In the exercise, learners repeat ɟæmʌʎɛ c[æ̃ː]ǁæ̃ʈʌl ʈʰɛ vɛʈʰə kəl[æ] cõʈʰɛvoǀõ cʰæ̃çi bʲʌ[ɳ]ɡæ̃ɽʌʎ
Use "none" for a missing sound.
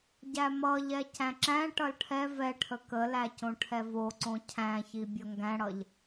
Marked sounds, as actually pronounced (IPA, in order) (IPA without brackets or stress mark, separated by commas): æ̃, æ, ŋ